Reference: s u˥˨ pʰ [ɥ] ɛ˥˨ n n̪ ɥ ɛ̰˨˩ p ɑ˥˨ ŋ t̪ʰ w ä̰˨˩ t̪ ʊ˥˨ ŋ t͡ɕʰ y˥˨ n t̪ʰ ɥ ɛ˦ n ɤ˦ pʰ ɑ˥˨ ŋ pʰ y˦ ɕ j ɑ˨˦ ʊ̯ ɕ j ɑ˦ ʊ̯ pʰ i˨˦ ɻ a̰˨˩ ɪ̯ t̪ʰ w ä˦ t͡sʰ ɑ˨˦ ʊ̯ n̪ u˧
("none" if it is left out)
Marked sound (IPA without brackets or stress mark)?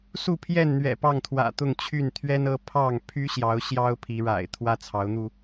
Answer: j